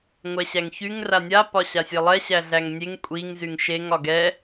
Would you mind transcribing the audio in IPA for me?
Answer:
ŋʷɛɕæŋçyŋ ranʲa pɒɕasʲelˠɛ ɕæɮæŋnʲeŋ kʷʼiŋ zyŋʃeŋ ɒɡɛ

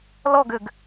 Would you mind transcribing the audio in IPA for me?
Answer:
lɔɡʏɡ

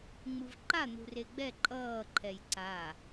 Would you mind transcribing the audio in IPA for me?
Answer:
ŋ͡mɯvǃan̪ṳre ɡ͡bɛ ǃʼʌːǃʰɛj ǀa

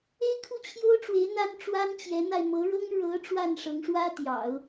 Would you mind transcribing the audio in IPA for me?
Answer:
e˥ɪ̯ kʰu˥˩t͡ɕʰjo˥ʊ̯ʈ͡ʂwe˧˥ɪ̯ n̪a˥nʈ͡ʂwa˥n t͡ɕjɛ˧˥n̪a˧ɪ̯ mɤ˧˥ɻɤ˥ŋ ɻɤ˧˥ ʈ͡ʂwa˥˩nʂɤ˧˥ŋʂwä˥t̪jɑ̰˨˩˦ʊ̯

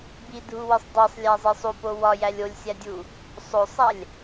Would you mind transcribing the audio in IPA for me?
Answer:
bidʱuwisˤ dˤesˤlʲæzˤi sˤupo wɒjælʲ olʲsʲædʲu | sˤosˤælʲ

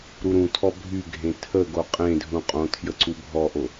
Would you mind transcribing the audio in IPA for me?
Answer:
ɾuɾũtʰɔ bʱyɡʱẽ tʰə ɡoqʼẽdʱũ qʼõtʰjə ǀubʱɔʔo

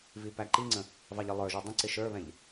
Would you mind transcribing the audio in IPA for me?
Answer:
vipæǃiŋ͡ǀə̃ | vɑʎəlˠə˞ʒu dˤə̃ǀɪ ʃə˞βɛ̃ʎ

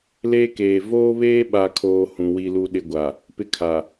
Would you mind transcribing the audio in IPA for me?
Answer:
leː˦keː˨ voː˦βeː˦ɓa˨kʰoː˨ hũ˨wi˦lu˦ ɗɪ˦ɡʷa˨ | pɪ˦kʰa˨

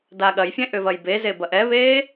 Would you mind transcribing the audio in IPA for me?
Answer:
daːɠɐjfʲɛ̃ ʔʏvɐjbeze bɐʔɛβeː

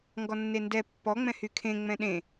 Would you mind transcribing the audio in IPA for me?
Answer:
ŋɡɔnːendɛ pːɔ ŋ͡mɛ̃hykʰẽ ŋ͡mɛ̃ɗẽ

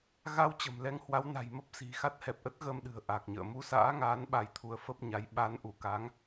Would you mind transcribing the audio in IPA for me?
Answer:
ɣa˧w t͡ɕə̤˨˩mlɛ˧ŋhwa˨˦w na̤˨˩jmə˦˥p̚si̤˨˩ xa˦˥t̚hɛ˨˩p̚ʔə˦˥t̚ ɣə˧mɗɨ̤˨˩ə̯ ʔa˨˩k̚ɲə̰ː˧˨ mu˧sa̰ː˧˥ŋaː˨˦n ɓa˧jt̪ʰu˧ə̯ fə˦˥p̚ɲa˨˦j ɓa˨˦nʔu˧˩ka˨˦ŋ

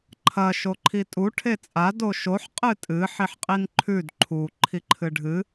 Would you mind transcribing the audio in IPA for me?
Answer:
ǃʰɐ ʃoǃʰitʼu ʈʰet͡sʼa doʃoħ qʼɨtʼɨ ħiħqʼinǃʰʉd ǃʰu ǃʰiǃʰɨɖʱɨ

